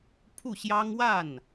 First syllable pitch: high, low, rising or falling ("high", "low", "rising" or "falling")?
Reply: falling